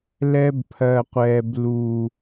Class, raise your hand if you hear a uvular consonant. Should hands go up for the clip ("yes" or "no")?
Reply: yes